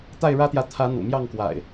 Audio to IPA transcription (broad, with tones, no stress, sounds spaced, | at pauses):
t̪ a˥˨ ɪ̯ ɻ ä˦ t̪ j ä˨ t̪ʰ ä˨˦ n̪ ṵ˨˩ m j ɑ˥˨ ŋ k w a̰˨˩ ɪ̯